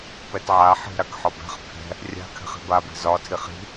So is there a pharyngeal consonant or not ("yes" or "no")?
yes